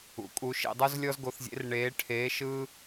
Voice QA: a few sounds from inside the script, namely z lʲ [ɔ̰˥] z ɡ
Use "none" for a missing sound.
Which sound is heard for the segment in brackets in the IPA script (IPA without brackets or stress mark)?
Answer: ɔ˥